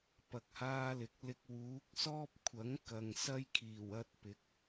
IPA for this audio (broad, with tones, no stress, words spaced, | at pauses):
pɐ˧k̚haː˥lɪ˨˥k̚lɪ˥k̚ wuː˨˥k̚sɔː˥p̚ kʷʰɐ˨˥ŋ kɐ˨ŋ sɐ˥jkʰiː˨˩w ɐ˥t̚pɪ˨˥k̚